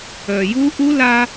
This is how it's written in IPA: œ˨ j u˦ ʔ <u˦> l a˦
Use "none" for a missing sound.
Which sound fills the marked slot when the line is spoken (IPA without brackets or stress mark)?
u˦